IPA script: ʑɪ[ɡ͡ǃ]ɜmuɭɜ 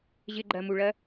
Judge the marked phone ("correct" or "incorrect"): correct